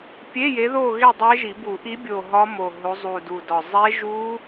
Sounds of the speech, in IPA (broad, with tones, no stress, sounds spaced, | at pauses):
pʲ e˧˥˧ j e˨˦ ð o˦˨ ɣ e˦˨ dˤ e˦˥ ʒ i˨˩˦ b u˨˩˦ ʔ i˨˦ bʲ o˨˩ ɦ ɒ˦˥ m o˨˩ ɦ o˨˦ zˤ u˨˩ d u˨˩ d ɒ˨˩ zˤ e˦˥ ʒ u˦˥